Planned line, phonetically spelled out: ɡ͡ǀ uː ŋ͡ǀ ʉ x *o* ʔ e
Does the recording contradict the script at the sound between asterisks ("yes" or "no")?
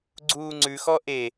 yes